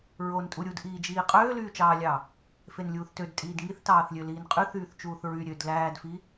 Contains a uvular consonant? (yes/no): yes